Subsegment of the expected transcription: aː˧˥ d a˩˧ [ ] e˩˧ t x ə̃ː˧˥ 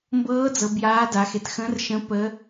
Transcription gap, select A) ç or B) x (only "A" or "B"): B